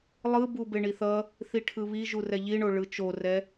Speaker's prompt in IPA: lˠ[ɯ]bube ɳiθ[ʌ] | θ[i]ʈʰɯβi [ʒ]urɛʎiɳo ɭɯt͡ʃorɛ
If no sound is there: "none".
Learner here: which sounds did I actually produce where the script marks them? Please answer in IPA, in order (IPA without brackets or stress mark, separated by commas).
ɯ, ʌ, i, ʒ